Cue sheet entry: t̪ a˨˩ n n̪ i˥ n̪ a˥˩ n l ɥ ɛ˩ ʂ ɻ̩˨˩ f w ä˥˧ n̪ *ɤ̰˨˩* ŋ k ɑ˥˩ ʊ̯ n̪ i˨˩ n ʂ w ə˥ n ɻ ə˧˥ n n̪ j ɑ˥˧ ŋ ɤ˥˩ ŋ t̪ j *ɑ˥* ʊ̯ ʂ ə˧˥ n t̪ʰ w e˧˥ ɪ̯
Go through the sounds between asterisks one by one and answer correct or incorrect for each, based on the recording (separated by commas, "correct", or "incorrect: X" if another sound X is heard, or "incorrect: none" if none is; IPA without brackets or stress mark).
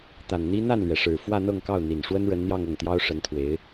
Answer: incorrect: ɤ˥˧, correct